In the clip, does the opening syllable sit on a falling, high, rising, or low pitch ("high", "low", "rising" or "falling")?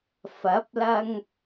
rising